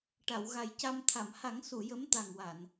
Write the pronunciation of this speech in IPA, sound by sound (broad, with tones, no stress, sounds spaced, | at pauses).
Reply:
ʈ a˨˩˨ w ɣ a˨˩ j c a˧ m t̪ʰ a˨˩˨ m h a˨˩˦ ŋ s u˨˩˨ j ə˧˥ m t̪ a˨˩ ŋ w a˨˩˨ n